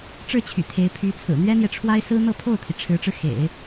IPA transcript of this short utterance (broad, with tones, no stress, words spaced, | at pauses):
ʈ͡ʂɻ̩˥˩t͡ɕʰy̰˨˩ t̪ʰe˧˥ɪ̯ pʰy˧˥t͡sʰɹ̩˨˩ n̪ɥɛ˥n̪jɛ˨ʈ͡ʂʰwa˥ɪ̯ sɹ̩˥n̪ɤ˥˧pʰo˥˩ʊ̯t̪ʰi˩ ʈ͡ʂʰɻ̩˧˥ʈ͡ʂɻ̩˧ xḛ˨˩˦ɪ̯